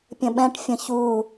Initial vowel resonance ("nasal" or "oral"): nasal